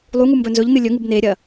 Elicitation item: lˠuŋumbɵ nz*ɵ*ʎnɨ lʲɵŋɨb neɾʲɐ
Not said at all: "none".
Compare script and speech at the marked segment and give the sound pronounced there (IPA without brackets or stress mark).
ɵ